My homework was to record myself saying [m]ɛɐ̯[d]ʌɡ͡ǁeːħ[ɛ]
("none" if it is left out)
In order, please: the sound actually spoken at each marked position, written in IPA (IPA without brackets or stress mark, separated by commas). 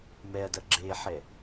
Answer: m, d, ɛ